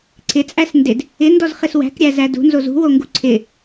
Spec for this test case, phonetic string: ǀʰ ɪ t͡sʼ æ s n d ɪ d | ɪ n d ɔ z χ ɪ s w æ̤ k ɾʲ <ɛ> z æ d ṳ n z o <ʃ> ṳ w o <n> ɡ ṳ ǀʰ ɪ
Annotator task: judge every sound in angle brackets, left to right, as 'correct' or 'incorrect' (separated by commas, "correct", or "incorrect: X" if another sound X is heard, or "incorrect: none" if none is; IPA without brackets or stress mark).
incorrect: æ, incorrect: z, incorrect: ŋ